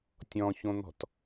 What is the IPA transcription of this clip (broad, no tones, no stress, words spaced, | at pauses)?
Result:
tʲɔ̃çõn̪ɔ̤t